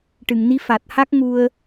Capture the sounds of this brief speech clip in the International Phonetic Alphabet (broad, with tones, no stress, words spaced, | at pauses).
ʈɨ˨˩˨ŋni˧˥ fa˨˩t̚ha˦˥k̚ ŋu˧ə̯